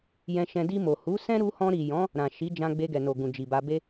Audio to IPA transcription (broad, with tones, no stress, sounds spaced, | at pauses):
j ɛ̃˧ ʃ ɛ̃˧ d i˧ m o˨ h u˨˦ s ɛ̃˦ ɾ u˧ h ɔ̃˧ ɾ i˨ j ɔ̃˨˦ | ɾ ã˨ ʃ i˨˦ d͡ʒ ã˧ ɡ͡b e˧ ɡ ɛ˨ n o˨ ɡ ũ˨ d͡ʒ i˨ b a˧ b e˦